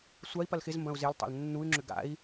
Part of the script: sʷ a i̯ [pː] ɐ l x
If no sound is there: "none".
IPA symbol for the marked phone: p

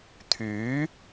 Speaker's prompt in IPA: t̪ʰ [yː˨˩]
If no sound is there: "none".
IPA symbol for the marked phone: yː˨˥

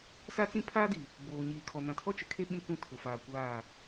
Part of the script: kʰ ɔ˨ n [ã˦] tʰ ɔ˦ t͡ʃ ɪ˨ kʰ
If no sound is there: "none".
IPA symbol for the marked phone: ã˨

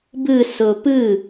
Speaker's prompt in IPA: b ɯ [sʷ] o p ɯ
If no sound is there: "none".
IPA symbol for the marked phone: s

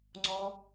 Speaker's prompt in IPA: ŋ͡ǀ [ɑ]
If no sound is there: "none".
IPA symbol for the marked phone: ɔ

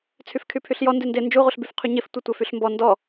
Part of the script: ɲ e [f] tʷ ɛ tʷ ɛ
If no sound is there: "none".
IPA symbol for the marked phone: f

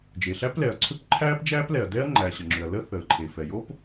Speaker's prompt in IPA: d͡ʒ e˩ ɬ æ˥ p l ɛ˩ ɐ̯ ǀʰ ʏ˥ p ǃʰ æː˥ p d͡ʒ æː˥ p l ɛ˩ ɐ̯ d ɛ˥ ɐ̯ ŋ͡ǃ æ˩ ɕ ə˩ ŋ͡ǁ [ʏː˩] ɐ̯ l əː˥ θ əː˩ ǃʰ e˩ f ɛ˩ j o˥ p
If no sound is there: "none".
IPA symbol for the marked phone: ʏ˩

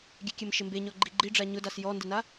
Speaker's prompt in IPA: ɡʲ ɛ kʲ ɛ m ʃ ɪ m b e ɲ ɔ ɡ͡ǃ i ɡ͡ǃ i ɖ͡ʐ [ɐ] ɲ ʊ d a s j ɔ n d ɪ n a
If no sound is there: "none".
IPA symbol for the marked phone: a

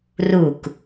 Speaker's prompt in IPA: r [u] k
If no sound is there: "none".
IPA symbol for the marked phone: u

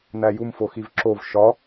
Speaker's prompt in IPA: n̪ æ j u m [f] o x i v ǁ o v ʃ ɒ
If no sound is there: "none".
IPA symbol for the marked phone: f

